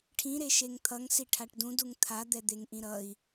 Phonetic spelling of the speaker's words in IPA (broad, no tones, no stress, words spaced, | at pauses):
ʈʰĩɾeʃeŋ t̪ʰʌŋsi ʈʰaʈdũ duŋt̪ʰa d̪ɛd̪eŋʔĩɾʌi̯